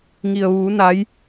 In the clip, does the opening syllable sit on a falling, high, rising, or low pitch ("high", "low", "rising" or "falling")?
low